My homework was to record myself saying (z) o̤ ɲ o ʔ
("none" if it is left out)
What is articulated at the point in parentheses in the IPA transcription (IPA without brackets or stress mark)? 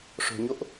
ʂ